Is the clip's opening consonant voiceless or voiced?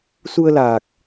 voiceless